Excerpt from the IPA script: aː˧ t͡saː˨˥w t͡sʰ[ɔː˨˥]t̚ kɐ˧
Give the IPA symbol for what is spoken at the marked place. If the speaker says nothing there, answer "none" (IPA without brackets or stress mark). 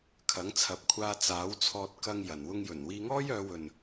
ɔː˧